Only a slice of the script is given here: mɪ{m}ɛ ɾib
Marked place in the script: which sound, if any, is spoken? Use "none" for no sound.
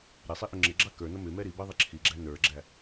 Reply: m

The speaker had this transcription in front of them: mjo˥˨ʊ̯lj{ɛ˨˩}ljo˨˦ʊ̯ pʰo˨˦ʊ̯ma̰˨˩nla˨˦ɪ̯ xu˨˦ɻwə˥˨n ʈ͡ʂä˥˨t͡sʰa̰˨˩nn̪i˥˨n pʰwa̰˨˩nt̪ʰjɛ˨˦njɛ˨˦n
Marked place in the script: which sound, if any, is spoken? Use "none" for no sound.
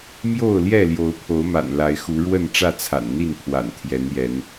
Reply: ɛ˥˨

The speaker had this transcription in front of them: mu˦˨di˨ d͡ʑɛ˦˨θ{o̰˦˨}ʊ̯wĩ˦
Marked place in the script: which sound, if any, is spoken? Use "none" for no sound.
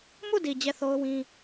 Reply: o˦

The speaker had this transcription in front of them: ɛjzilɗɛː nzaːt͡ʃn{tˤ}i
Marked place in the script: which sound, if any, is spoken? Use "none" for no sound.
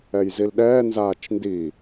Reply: d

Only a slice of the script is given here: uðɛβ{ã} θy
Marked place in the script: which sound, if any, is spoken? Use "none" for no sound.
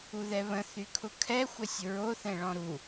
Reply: ə̃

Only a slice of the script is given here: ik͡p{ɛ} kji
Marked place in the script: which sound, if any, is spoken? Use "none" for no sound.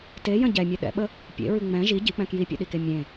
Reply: ɛ̃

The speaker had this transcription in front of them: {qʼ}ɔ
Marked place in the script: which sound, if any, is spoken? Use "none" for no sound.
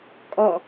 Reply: kʼ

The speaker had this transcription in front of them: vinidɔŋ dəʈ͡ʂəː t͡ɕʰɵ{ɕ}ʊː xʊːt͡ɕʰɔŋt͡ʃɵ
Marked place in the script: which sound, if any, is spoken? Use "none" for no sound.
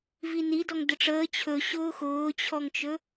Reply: ɕ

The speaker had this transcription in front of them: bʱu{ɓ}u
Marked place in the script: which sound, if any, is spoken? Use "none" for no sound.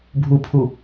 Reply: pʰ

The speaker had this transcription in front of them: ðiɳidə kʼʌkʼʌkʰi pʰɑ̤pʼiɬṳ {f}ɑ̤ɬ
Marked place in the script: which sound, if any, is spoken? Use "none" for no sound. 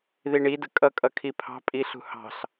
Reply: h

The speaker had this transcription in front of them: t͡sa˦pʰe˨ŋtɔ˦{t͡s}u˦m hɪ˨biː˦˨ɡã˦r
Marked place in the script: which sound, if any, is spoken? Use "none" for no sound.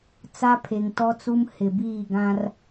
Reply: t͡s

